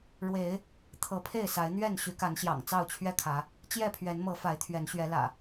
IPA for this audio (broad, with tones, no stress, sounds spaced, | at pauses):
ɻ w e˨˦ ɪ̯ | t̪ʰ ɤ˨˦ pʰ e˥˨ ɪ̯ s a˨˦ ɪ̯ n̪ ɥ ɛ˥˨ n ɕ y˨˦ k a˨˦ n ɕ j ɑ̰˨˩ ŋ t͡s ɑ˥˨ ʊ̯ t͡ɕʰ ɥ ɛ˥˨ kʰ ä˨˦ | t͡ɕ j ɛ˥˨ pʰ ɥ ɛ˨˦ n m ɤ˨˦ f a˨˦ ɪ̯ t̪ʰ ɥ ɛ˨˦ n ɕ ɥ ɛ˨˦ l ä̰˨˩